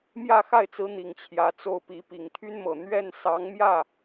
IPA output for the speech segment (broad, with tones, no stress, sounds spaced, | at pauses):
m j ä˥˧ x a˥˩ ɪ̯ t͡s ɹ̩˧˥ n̪ i˨˩ ŋ t͡ɕʰ j ä˧˥ t͡s o˥˩ ʊ̯ p i˧˥ p i˨˩ ŋ t̪ʰ y˥ n m ɤ˨˩ n̪ ɥ ɛ˥˩ n s ɑ˧˥ ŋ m j ä˥˩